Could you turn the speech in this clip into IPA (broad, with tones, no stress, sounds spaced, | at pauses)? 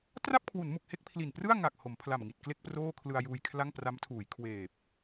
t r a˥˩ p̚ kʰ w u˩˦ n m u˨˩ k̚ h e˥˩ k̚ pʰ l i˨˩ n p r ɯ˥˩ a̯ ŋ a˨˩ k̚ h o˩˦ m pʰ l a˨˩ m ŋ i˨˩ t̚ k l e˥˩ k̚ p r oː˥˩ kʰ l ɯ˧ a̯ j uː˧ j kʰ l a˥˩ ŋ p r a˦˥ m tʰ uː˩˦ j kʰ w eː˨˩ p̚